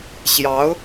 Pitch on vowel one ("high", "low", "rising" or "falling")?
rising